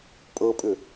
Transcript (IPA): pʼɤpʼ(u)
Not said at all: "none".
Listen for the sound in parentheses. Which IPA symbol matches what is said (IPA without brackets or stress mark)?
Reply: ʏ